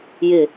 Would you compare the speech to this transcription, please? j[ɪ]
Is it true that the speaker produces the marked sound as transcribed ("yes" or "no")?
yes